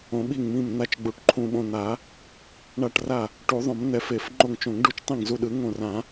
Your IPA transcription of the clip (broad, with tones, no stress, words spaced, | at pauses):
õ˨˩˦ɓi˧˩ŋmĩ˧˩m n̪a˧˩t͡ʃ ɡ͡bu˨˩˦ʈǃʰũ˧˩ɓõ˧˩n̪a˨˩˦ | ɳa˧˩ʈra˧˩ | ʈu˨˩˦ðˤõ˨˩˦mn̪ɛ˨˩˦f e˨˩˦fŋ͡ǃo˧˩ŋt͡ʃõ˨˩˦ŋɖu˧˩t͡ʃ tˤĩ˧˩ŋzu˧˩ɗɯ˨˩˦ ŋõ˧˩rã˨˩˦